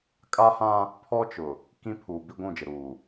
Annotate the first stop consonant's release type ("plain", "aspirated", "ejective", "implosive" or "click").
ejective